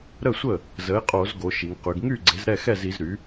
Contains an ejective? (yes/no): yes